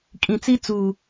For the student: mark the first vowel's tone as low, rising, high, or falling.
low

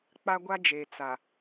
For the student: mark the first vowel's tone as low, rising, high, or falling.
high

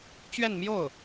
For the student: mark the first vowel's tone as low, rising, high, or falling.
falling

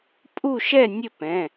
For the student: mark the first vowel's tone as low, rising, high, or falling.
falling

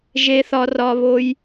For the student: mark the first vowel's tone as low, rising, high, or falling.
high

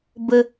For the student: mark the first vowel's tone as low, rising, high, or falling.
high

